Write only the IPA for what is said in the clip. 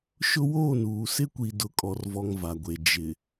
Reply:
ʃ ʊ˦ w oː˦˨ n uː˨ s ɪ˦ kʷ i˨ d ʊ˨ kʼ ɔ˨ r v ɔ˨ ŋ v a˨ ɡʷ e˨ d͡ʒ ɪ˨

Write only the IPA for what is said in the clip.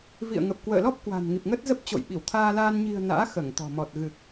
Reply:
v ḭ˧˨ ə̯ ŋ ə˨˩ p̚ k w ə̰ː˧˨ l ɔ˦˥ p̚ k w a̤˨˩ n ŋ i˨˩ p̚ ŋ ə˦˥ t̚ z ə˦˥ p̚ t͡ɕ o̰˧˨ j ɓ i˧˩ w t̪ʰ aː˧ l aː˧ n ɲ i̤˨˩ ə̯ n a̰ː˧˥ x əː˧˩ ŋ t̪ ɔ̤˨˩ m ɔ˨˩ t̚ ɣ ɨ˨˩ k̚

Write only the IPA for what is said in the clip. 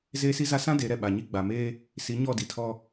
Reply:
z eː˦ s i˦ z a˦ s ã˦ d e˨˦ ɾ ɛ˨ ɓ a˨ ɲ i˦ ɡ͡b a˨ m eː˦ | s i˨˦ ɲ ɔ˦˨ d i˨ tʰ ɔ˦

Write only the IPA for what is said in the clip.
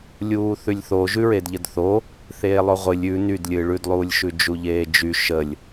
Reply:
lʲ uː θ ʉ lʲ θ o ʒ ʉ ɹ e d ʎ ə d θ o | θ eː lˠ o ʁʷ ɨ lʲ ʉ n y d lʲ ɨ ɭ ʉ d lˠ uː lʲ ʃ ʉ d͡ʒ u ʎ eː d͡ʒ y ʃ ə lʲ

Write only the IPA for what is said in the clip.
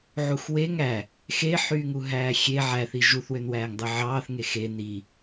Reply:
ʕ u x w e ŋ æ | x e ħ yː ŋ u ɦ æː xʲ e ʕ æ θ i ʒ u θ w ø n w æː ŋ dˤ ɯ ʕ ɑː θ ŋ e x e n i

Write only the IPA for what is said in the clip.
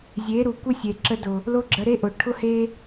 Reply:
zʲ e˨˦ ɾ u˨ kʷ ə˦ sʲ e˨ ǁ ə˧ d ʊ˨ | l o˦ ɡ͡ǁ ə˧ ɾ e˦ ʔ ʊ˨ ʈʰ ʊ˦ h e˦

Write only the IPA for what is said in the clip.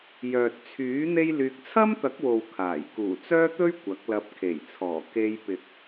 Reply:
j œː˨ t̚ t͡sʰ yː˨˥ n̪ e˥ j l yː˧ k̚ t͡sʰ ɐ˥ m t̪ ɐ˨˥ k̚ w o˨ w kʰ aː˨˩ j k uː˨˩ t͡s œː˥ t̪ ɵ˥ ɥ kʷ ɐ˨˥ k̚ l ɐ˧ p̚ kʰ e˨˩ j t͡sʰ ɔː˨˩ k e˧ j p ɪ˨ k̚

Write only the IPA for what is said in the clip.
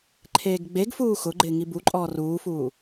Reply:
ǃʰ eː ɡ ɡ͡b e ɡ f uː x ʊ ɡ͡ǃ ɪː ŋ i b u ǃʼ ɔː r uː f uː

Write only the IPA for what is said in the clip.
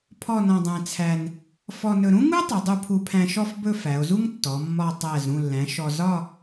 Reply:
pʰ ɔ˥˧ n ɔ̃˧ dˤ æ̃˧ t͡sʰ æ˧ n | f ɔ˧ n ɵ˧ ɾ ũ˥ ŋ u˥ tˤ ɵ˩˧ dˤ u˧ pʰ u˧ pʰ æ̃˧ ʃ ɔ˥˧ f b ɵ˥˧ f æ˩˧ o̯ z u˥ ŋ tː ɔ˩˧ mː ɒ˧ tˤ æ˧˩ z ɾ ũ˧˩ lː æ̃˩˧ ʃ ɔ˧ z ɒ˥˧

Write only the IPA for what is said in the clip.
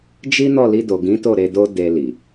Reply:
d͡ʒ i˦ n ɔ˦˨ l i˧ d o˨ ɡ ĩ˨˦ t o˦˨ ɾ e˧ d o˦ d e˧ l i˨

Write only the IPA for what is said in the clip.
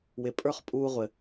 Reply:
w ɪ˨ pʼ ə˞˦ χ pʼ uː˧ ʁʷ ɘ˨

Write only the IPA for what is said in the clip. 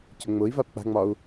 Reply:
c ʊ ŋ͡m ʊ i̯ v a p k͡p a̤ ŋ͡m ɒ u̯

